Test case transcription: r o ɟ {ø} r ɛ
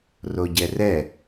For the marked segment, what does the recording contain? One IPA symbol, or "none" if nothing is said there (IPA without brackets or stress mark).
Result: ɛ